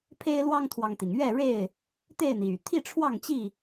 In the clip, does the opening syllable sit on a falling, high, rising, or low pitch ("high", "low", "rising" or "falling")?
high